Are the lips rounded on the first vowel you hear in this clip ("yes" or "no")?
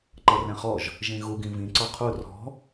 no